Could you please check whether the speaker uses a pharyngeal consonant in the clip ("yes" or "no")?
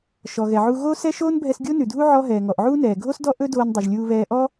yes